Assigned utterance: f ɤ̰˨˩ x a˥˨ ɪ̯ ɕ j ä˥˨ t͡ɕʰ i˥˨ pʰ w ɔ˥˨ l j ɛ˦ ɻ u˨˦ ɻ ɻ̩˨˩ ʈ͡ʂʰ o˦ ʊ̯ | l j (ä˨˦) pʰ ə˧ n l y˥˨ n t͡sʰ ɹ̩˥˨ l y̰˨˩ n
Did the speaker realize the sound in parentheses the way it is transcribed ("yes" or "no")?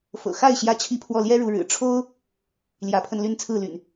yes